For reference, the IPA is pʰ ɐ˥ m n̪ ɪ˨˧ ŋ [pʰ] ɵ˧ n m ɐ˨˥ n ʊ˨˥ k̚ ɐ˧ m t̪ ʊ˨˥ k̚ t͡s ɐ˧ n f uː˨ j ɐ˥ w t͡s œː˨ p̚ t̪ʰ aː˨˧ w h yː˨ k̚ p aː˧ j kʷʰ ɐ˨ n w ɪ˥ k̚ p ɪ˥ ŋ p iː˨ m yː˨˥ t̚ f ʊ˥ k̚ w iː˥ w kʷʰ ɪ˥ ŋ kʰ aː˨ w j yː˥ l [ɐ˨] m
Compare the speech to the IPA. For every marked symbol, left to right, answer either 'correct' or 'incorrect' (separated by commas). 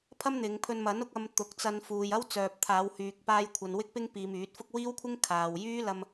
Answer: correct, incorrect